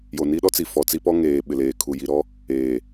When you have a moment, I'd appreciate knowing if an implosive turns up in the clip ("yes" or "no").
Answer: yes